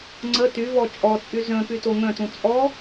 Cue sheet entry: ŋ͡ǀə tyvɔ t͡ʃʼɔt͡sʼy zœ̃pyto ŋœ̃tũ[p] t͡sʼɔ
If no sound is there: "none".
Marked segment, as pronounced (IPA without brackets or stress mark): none